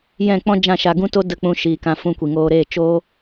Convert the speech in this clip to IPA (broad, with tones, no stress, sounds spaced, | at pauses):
j ɛ̃˦˨ k͡p ɔ̃˦ d͡ʒ ã˦˨ ʃ a˧ ɡ ũ˦ t o˦ d ə˦˨ k͡p ũ˧ ʃ iː˨ k ã˧ f ũ˧ kʷ i˨ ŋ oː˦ ɾ eː˦˨ t͡ʃ o˦